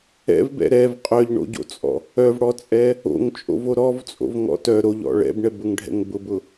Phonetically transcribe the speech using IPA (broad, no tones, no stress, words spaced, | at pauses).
ɛ̰vbɛ̰ ɾɛv qʼœʎɳo̰ɟo̰t͡sʼɔ̰ | œvɽɔt͡sʼɛ | o̰ŋt͡ʃʼo̰vo ɾɔvt͡sʼo̰vŋɔ̰ tœ ɾoʎɔ̰ ɭɛ̰bɳɛbʊŋɖʱɛ̰ŋ bʊbʊ